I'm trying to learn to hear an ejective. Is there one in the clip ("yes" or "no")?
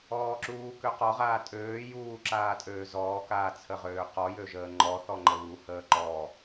yes